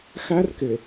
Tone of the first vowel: high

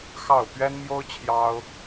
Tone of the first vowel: falling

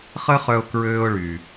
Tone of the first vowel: high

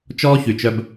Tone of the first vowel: high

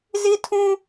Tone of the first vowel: high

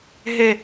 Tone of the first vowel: falling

